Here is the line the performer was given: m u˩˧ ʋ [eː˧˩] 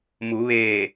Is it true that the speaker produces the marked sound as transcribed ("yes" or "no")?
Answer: yes